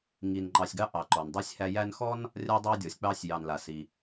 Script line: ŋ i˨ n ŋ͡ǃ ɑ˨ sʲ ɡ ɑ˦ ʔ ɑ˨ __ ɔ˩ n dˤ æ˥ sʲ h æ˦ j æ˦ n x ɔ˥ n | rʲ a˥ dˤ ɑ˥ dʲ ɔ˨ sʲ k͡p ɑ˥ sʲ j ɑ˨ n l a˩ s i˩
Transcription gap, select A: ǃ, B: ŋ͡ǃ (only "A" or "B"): A